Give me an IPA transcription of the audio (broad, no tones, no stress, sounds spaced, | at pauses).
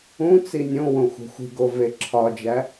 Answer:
ũ t͡s i nʲ õ w õ xʷ e̤ xʷ i̤ ɡ o v e ǁʰ ɒ d͡ʒ æ